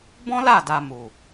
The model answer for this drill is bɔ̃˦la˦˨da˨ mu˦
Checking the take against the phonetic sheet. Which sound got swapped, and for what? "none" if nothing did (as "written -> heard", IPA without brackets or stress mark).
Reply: u˦ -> u˨